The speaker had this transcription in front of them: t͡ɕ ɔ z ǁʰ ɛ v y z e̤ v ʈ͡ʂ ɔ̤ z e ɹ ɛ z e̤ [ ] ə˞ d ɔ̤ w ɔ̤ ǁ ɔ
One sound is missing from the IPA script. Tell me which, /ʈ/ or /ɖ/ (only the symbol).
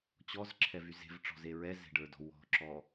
ɖ